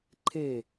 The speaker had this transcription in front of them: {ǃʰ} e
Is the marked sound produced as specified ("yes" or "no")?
yes